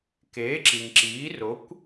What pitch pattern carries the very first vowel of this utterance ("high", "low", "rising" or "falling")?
rising